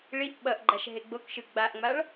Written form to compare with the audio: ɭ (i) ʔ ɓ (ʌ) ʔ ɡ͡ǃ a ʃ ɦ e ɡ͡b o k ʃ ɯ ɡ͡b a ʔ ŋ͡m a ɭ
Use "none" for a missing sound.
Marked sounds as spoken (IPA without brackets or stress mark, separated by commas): i, ʌ